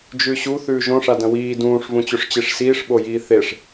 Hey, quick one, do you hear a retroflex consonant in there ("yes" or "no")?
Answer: yes